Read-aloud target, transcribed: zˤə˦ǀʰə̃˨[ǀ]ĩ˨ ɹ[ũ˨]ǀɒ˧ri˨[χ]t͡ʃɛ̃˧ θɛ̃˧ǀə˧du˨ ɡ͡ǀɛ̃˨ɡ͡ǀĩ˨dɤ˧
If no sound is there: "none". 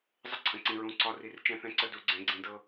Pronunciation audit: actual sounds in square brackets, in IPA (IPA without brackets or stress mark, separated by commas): ǀ, ũ˨, r